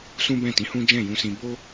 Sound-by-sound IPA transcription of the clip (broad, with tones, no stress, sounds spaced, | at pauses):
s ũ˦ b ɛ̃˦˨ t ĩ˨˦ h ũ˦ d͡ʒ ɛ̃˦˨ j ũ˧ s ĩ˧ b o˦